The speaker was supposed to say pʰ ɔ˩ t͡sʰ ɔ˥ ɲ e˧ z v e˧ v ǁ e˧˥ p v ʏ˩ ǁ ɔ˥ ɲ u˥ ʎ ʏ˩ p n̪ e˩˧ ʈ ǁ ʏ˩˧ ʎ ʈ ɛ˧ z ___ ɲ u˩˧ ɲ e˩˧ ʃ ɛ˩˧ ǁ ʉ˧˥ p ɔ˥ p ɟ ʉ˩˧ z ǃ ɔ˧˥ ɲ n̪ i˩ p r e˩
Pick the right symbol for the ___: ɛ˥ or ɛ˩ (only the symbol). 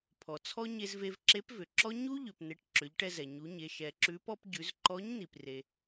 ɛ˩